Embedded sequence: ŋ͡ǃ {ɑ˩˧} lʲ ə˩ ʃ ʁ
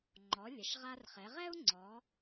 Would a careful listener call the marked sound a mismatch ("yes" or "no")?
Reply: yes